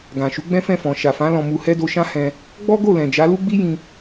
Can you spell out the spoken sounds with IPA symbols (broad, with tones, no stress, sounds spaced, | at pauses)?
ɡ ã˨ ʃ u˨˦ ɡ͡b ɛ̃˦ f ɛ̃˦˨ f ɔ̃˨ ʃ a˨ f ã˨˦ l ɔ̃˧ m u˧ h ɛ˦ d o˧ ʃ ã˦ h ɛ̃˧ | ɡ͡b ɔ˦ ɡ o˦˨ l ɛ̃˨ d͡ʒ a˨˦ l u˦ ɡ͡b i˦ j ĩ˧